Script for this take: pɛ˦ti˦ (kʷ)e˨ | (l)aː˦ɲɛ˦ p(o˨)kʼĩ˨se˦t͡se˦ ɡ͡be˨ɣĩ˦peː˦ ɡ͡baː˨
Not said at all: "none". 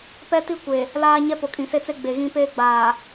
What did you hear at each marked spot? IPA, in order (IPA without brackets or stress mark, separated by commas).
kʷ, l, o˨